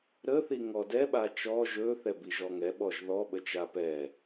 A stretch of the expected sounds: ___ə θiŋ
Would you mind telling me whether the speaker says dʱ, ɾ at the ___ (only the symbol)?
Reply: ɾ